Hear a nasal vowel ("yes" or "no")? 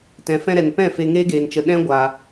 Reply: yes